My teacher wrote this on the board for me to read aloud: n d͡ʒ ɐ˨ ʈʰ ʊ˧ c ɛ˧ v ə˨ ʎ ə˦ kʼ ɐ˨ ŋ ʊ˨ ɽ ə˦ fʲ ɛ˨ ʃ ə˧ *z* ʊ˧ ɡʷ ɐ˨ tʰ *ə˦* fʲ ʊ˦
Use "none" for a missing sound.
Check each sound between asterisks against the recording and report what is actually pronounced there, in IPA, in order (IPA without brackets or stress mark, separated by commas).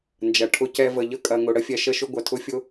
ʃ, ʊ˦